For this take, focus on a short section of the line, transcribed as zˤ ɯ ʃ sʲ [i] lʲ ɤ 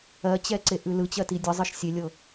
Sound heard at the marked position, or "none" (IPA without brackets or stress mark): e